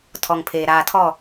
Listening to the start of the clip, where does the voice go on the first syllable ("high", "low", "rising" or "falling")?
low